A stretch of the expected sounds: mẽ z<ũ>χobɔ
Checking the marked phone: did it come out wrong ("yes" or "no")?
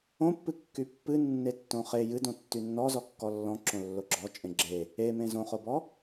yes